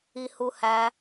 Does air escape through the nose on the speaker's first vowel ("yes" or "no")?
no